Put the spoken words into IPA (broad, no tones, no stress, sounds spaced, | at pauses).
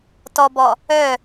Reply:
t ɔ b ɔ | œ